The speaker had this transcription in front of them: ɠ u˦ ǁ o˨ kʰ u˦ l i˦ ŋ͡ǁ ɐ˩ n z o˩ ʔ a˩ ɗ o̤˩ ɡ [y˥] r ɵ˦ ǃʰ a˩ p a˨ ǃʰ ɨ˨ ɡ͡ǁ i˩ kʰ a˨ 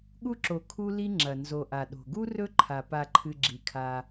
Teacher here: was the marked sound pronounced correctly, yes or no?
no